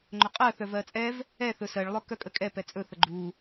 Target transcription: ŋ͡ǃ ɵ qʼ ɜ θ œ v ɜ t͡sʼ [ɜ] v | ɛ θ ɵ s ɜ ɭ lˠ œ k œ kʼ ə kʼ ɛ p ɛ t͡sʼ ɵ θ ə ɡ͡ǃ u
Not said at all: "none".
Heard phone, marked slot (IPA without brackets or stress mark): ɛ